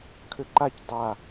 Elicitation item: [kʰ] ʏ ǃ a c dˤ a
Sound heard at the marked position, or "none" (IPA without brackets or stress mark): kʰ